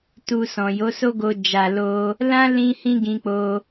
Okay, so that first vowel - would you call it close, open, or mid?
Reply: close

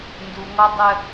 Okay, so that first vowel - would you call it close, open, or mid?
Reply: close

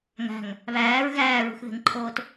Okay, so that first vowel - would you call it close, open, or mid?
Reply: open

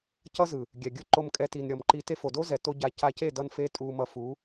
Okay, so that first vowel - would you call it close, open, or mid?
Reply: mid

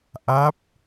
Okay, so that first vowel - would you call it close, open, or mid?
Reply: open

